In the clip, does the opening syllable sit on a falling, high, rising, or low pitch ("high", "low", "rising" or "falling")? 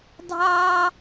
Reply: high